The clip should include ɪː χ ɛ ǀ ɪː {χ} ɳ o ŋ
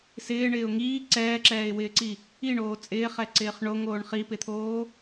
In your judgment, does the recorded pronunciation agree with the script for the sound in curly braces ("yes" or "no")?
yes